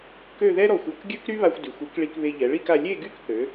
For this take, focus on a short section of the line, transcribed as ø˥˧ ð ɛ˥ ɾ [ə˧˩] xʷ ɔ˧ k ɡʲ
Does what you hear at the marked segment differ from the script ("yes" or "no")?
yes